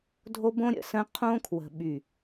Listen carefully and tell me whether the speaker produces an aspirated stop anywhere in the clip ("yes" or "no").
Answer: yes